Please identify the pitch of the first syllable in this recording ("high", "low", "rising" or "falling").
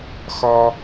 low